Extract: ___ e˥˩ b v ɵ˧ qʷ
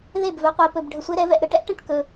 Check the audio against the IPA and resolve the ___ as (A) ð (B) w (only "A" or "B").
A